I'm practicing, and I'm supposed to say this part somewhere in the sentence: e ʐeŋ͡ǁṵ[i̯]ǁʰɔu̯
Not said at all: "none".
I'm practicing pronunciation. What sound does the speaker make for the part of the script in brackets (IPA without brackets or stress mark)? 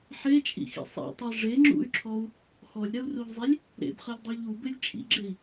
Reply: y̯